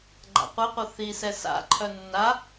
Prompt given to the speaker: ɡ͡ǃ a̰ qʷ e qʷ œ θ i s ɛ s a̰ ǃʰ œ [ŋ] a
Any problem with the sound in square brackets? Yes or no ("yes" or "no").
yes